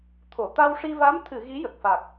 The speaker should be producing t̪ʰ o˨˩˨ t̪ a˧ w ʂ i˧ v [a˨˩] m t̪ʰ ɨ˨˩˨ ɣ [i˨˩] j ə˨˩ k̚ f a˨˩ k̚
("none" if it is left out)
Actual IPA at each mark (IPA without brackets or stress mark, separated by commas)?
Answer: a˧˥, i˧˥